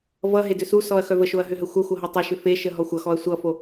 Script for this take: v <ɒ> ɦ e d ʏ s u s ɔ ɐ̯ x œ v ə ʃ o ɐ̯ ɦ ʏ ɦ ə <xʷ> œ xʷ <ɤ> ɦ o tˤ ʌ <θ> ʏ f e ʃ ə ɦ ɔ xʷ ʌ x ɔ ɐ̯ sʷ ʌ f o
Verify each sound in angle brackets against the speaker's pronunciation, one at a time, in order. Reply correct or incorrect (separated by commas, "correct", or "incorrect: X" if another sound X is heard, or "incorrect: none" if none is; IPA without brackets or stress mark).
incorrect: ʌ, correct, correct, incorrect: ʃ